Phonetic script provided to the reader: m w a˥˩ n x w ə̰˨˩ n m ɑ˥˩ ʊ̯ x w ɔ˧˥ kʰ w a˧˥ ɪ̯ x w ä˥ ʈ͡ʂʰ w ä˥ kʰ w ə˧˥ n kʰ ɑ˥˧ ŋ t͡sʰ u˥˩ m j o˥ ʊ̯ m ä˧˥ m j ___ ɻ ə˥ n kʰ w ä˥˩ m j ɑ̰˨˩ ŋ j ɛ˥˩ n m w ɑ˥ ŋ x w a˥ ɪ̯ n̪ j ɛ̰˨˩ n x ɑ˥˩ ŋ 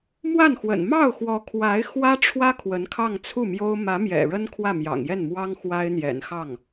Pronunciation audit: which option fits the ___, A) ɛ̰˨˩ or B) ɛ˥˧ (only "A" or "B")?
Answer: A